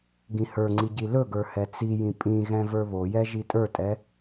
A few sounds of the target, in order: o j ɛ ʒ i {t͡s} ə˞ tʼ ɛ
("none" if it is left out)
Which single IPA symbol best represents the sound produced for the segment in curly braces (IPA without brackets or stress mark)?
tʼ